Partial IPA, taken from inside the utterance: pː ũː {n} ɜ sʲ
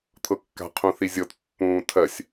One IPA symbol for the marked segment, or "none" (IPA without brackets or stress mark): tʰ